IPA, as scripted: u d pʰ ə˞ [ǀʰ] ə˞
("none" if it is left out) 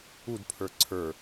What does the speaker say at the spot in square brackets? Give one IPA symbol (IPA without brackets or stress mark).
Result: ǀʰ